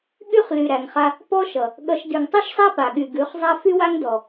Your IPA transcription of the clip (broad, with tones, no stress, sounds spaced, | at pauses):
ɠ y˦ χ l y˨ ɾ æ˨ ŋ χ a˧ | p ɔ˦ ʃ ʌ˨ | ɠ ʌ˧ ʃ d ʉ˨ ŋ tˤ ʉ˦ ʃ sˤ æ˦ p a˨ ɠ y˨ ɡ ʉ˨˦ χ zˤ a˦ f y˦ w a˦ ŋ d ɔ˨